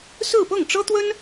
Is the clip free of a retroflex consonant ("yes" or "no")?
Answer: no